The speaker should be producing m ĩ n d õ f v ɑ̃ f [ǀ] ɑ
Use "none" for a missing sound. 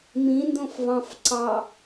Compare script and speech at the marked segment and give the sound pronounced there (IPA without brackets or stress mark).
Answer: ǀ